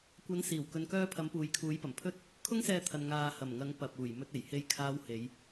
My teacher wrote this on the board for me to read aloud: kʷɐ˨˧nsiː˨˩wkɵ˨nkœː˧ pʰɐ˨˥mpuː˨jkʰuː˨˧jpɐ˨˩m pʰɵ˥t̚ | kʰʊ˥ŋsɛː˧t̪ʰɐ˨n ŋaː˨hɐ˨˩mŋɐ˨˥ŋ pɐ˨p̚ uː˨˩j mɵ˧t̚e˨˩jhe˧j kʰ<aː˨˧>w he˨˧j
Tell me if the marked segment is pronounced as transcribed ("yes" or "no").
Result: yes